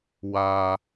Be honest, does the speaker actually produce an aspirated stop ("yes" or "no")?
no